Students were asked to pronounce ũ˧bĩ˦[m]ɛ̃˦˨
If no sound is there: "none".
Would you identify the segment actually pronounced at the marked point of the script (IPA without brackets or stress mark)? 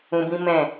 m